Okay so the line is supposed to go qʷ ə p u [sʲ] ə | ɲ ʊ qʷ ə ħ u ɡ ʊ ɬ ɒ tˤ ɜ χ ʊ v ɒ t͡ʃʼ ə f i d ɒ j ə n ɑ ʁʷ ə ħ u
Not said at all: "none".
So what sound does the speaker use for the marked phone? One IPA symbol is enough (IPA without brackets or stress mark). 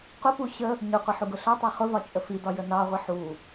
ɕ